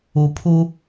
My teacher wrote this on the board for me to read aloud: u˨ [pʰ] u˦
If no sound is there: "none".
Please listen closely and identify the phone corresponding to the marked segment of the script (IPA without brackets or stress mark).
pʰ